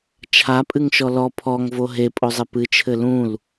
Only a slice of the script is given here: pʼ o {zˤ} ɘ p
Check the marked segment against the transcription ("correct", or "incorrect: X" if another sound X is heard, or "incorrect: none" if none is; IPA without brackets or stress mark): correct